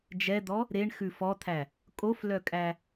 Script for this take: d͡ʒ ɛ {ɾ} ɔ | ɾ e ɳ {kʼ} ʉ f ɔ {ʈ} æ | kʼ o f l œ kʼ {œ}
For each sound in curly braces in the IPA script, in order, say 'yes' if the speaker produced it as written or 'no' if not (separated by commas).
no, no, no, no